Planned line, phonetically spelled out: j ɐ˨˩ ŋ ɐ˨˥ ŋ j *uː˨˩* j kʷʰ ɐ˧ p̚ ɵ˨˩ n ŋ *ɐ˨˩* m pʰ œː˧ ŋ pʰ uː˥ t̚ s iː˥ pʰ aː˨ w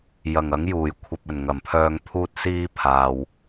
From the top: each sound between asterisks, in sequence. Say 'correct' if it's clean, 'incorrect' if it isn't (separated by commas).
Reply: correct, correct